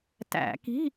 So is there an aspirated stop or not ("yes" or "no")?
no